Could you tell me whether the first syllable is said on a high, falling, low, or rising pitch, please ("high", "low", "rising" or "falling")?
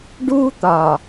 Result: high